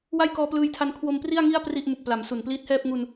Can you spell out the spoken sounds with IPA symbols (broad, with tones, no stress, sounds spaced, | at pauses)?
w a˥˩ j k ɔː˧ p l ɯː˧ j tʰ a˧ n kʰ w o˧ m p r i˥˩ a̯ ŋ i˥˩ a̯ p r i˥˩ ʔ m u˨˩ k̚ p l a˩˦ m s u˨˩ n p l iː˦˥ t̚ h ɛː˥˩ p̚ ŋ u˧ n